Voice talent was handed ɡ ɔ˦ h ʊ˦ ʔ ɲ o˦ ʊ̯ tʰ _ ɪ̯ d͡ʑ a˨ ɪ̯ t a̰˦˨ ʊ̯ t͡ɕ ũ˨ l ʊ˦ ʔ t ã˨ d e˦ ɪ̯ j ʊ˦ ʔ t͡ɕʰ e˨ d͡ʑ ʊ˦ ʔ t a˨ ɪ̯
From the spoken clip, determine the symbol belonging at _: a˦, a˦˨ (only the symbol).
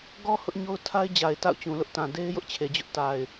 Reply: a˦